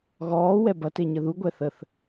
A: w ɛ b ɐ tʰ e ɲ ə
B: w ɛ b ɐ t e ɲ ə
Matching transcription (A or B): B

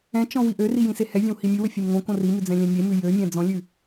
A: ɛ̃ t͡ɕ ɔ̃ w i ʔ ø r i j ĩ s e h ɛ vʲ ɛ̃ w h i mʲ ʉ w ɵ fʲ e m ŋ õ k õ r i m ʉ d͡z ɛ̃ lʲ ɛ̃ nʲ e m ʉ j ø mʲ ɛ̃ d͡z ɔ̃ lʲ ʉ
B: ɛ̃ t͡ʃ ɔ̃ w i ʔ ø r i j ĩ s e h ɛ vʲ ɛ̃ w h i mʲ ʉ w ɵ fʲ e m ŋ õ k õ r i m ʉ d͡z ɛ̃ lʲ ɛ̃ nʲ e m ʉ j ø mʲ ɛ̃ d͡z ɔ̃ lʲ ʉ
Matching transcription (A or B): B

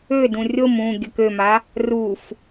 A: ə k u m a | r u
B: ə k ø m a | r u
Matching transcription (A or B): B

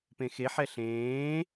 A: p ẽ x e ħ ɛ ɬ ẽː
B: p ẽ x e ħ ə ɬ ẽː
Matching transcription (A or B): A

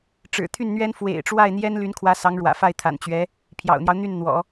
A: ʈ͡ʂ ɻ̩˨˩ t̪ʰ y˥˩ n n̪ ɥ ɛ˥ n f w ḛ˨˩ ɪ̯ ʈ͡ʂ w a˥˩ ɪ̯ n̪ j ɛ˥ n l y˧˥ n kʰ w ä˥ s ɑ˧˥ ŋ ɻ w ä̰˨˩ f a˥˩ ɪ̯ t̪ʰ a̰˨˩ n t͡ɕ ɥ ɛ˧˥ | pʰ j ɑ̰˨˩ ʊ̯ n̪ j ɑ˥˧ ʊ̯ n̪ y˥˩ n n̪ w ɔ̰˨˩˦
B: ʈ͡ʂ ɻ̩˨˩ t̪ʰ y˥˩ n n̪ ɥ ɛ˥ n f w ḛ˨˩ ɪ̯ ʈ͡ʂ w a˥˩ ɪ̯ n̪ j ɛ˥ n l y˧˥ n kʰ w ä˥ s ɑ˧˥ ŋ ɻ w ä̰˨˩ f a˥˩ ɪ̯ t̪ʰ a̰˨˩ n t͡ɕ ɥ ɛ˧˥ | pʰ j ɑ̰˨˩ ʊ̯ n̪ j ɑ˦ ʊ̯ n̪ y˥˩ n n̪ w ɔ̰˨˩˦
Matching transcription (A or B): B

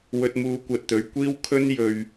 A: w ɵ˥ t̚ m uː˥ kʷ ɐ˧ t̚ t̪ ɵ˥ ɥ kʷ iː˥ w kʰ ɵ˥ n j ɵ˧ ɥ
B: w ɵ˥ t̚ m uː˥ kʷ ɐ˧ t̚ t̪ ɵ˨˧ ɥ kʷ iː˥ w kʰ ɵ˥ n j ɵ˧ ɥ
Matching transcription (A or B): B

